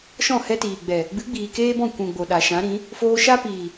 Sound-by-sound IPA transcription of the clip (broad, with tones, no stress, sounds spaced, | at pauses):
ʃ ɔ̃˦˨ h ɛ˧ t iː˨ ɡ͡b ɛ˨ | ɡ͡b ɨ˨˦ ɡ͡b iː˨ k eː˦ b ɔ̃˦˨ kʷ ũ˨ ɡ͡b o˨ ɗ a˨ ʃ ã˨˦ ɾ ĩ˨˦ | f oː˧ ʃ a˦ p iː˨